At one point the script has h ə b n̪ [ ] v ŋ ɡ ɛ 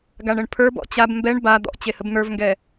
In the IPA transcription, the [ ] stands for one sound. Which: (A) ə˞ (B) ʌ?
A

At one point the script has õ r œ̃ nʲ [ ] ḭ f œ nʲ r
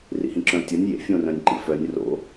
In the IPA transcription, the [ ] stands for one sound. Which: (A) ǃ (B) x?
A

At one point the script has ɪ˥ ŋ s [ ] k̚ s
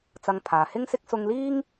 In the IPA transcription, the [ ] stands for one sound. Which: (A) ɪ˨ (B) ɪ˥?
B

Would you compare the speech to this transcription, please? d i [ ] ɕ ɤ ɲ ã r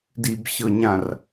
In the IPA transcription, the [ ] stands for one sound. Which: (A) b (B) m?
A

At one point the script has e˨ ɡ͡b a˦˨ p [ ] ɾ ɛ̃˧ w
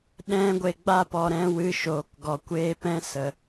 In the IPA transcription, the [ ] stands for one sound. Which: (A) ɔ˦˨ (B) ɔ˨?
B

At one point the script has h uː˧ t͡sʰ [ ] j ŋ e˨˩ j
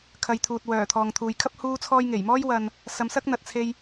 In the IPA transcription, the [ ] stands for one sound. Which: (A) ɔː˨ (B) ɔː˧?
B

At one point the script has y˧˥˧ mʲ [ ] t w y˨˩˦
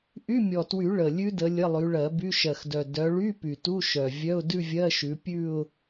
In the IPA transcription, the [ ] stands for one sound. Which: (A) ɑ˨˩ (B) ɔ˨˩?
B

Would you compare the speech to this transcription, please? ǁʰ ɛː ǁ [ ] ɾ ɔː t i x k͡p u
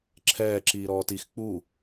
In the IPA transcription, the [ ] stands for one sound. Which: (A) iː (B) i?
A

